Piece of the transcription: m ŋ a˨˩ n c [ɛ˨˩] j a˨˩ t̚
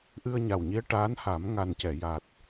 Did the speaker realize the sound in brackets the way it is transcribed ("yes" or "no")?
no